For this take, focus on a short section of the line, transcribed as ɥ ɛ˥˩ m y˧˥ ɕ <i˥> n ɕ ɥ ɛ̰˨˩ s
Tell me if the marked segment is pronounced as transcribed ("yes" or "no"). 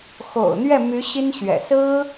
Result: yes